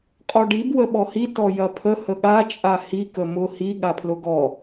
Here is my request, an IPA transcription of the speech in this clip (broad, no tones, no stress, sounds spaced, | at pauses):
qʼ ɔ ɖ i b w ə ɓ ɔ h i t ɔ j ɐ pʰ ə h ə ɠ a t͡ʃʼ a h i k ə m ʊ h i ɠ a pʰ l ʊ ɡ ɔ